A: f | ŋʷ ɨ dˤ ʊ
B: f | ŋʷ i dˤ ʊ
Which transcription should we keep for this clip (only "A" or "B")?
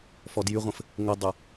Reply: B